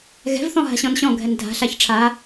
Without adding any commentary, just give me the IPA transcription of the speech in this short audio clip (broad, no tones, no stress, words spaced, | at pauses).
ɣɛ̤vθɔ̃ ɦa̤ɕɔ̃nɕɔ̃ɡʱɛn dʱa̤ɬaç ʈ͡ʂʰa